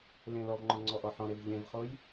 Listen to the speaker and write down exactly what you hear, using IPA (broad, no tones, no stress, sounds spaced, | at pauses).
l ẽ l ɔ v ŋ͡ǃ ɔ̃ ŋ͡ǀ ɔ ʔ ɔ ħ ɔ̃ ɾ e v ʎ ẽ v χ o j